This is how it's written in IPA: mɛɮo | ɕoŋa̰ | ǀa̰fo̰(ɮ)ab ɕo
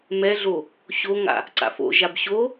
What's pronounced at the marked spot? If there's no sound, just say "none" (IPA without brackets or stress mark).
ʒ